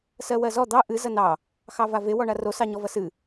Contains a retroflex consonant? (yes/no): yes